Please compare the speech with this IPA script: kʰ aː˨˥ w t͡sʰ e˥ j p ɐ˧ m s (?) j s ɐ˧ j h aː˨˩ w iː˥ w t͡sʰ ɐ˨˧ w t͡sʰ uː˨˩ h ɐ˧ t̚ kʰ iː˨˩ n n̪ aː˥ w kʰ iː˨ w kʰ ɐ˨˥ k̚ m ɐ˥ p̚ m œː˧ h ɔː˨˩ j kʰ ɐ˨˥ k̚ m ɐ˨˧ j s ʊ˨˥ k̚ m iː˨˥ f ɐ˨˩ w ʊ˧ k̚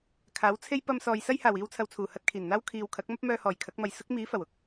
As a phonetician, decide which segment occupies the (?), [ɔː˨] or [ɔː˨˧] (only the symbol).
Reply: ɔː˨